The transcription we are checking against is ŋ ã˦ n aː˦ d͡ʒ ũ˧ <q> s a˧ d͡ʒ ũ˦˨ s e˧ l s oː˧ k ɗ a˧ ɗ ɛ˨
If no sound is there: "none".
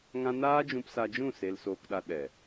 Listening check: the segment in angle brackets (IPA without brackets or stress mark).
p